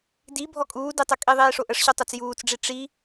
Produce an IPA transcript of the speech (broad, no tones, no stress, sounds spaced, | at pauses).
d i bʱ ɔ kʼ uː d i tˤ ɤ kʼ i ðˤ iː ʂ o ʔ ə ʂ ɕ u tˤ o t͡s j uː t͡s ɖ͡ʐ i ʈ͡ʂ i